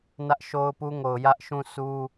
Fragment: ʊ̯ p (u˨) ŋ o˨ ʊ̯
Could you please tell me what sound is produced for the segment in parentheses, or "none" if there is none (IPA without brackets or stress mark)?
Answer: u˦